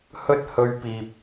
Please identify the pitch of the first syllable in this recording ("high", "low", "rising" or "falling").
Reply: high